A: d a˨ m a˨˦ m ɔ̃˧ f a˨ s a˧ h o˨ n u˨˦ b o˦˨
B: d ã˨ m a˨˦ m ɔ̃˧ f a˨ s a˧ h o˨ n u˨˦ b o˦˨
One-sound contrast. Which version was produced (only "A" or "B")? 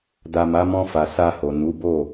A